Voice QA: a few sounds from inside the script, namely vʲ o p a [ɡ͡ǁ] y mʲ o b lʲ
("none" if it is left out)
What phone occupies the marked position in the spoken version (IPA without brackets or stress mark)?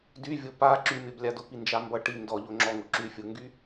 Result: ǁ